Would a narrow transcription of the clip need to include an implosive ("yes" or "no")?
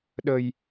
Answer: yes